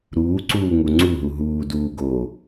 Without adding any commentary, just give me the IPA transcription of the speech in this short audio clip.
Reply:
ɾuːǀuː ŋuŋ͡ǀuɦu ɦuːduː ɡo

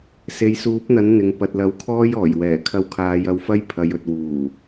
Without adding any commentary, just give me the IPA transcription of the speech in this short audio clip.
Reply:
se˨jsuː˨˥p̚n̪ɐ˨˥n n̪ɪ˨ŋ pɐ˨t̚lɐ˨˥wkʰɔː˥j ɔː˨˩jwɛː˨˩ kʰɐ˧wkʰaː˨˧jɐ˧wfɐ˥j pʰɐ˨jɵ˨t̚wuː˨˩

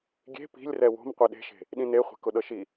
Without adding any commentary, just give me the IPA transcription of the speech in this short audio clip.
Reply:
ɡʲe̤ pi̤lʲ rɛwo̤m qʷeɗe̤ʃe̤ | ɗĩne χʷe̤kʊɗɤʃi

